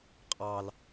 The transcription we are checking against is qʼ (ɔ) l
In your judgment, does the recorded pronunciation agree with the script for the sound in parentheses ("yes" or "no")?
no